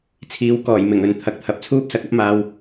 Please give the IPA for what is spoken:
t͡sʰ iː˨˥ w k ɔː˨˩ j m ɪ˨˩ ŋ ɵ˨ n t̪ʰ ɐ˨ k̚ t̪ʰ ɐ˨ p̚ t͡sʰ uː˥ p̚ s ɐ˨˥ k̚ ɐ˥ p̚ m aː˧ w

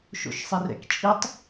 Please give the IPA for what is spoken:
ʃ o̰ ʃ sˤ i r ɛ̰ k t͡ʃʼ i tˤ

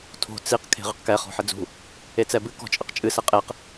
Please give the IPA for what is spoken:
tʰ o̤ t͡s i q kʰ e̤ ʁ ɘ q k ɛ χ ɔ̤ ħ ɘ d͡z ṳ | e t͡s ɛ b ɨ k ɔ̤ t͡ʃʼ ɘ q t͡ʃʼ ɨ s ɛ qʼ e q

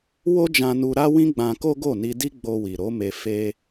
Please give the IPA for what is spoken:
w o˦ d͡ʒ ã˧ n u˧ ɾ a˦ w ĩ˦ ɡ͡b ã˧ k o˦ ɡ o˦˨ n i˧ d i˦ ɡ͡b o˧ w i˨ ɾ o˨˦ m e˧ f e˦

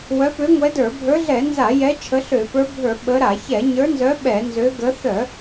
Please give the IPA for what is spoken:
w œ˨˦ p ø˨˦ ŋʷ ɛ˨˦ d ə˞˧˩˧ bʱ ə˞˨˦ ɮ ɛ˧˩˧ n z a˧˩˧ j ɛ˨˦ t͡ʃʰ ə˨˦ ɬ ø˧˩˧ p ə˞˨˦ bʱ ə˞˧˩˧ ɓ ə˨˦ ɾ a˧˩˧ ç ɛ˧˩˧ ɲ ə˞˨˦ n z œ˨˦ ɓ ɛ˧˩˧ n z ø˨˦ ɡ ə˨˦ θ œ˧˩˧

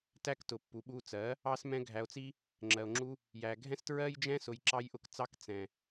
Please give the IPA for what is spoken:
t æ˦ k t ʊ˨ pː u˨ ɓ u˧ t͡s ɜ˨˦ | ɑ˦ s m ɛ̃˦ ɡʱ æ˧ o̯ t͡s i˦ | ŋ͡ǁ ɜ˧ o̯ ŋ͡ǁ u˦ | j æ˨ ɡʱ ɛ̃˦ s t ɹ ɜ˦ j d͡ʒ ɛ̃˦ s ʊ˧ j ǁ ɑ˦ j ʔ ʊ˧ k t͡s ɑ˦ k t͡s ɛ̃˨

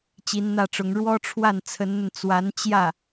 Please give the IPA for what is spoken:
t͡ɕ i˧˥ n n̪ ä˥˩ ʈ͡ʂ ʊ˧˥ ŋ ɻ w ɔ˥ ʈ͡ʂʰ w a˥˩ n t͡sʰ ə˧˥ n n̪ ə˧ n t͡s w a˧˥ n t͡ɕ j ä˥˩

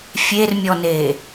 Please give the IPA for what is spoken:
fʲ e r mʲ ɔ n e

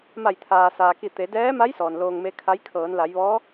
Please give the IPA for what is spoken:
m a˧˩ j t̪ʰ aː˩ s aː˩ k i˧˩ t̪ e˩˧ d ɛː˧˥ m a˧˥ j s ɔː˩ n l oː˧ ŋ m e˧˥ kʰ a˧˥ j kʰ ɤː˩˧ n l a˩˧ j ʋ ɔː˧˥

